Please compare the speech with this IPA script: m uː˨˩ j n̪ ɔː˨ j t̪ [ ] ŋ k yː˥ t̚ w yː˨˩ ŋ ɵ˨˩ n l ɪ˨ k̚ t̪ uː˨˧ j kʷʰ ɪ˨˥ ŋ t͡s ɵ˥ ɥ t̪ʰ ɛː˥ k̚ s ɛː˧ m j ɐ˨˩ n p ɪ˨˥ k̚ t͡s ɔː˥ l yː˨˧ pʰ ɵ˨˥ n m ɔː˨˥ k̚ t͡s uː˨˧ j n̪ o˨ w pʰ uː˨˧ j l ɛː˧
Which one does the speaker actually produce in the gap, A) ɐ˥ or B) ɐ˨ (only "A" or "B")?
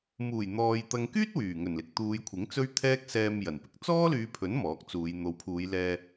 B